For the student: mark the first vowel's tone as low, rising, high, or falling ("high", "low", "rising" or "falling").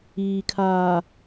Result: low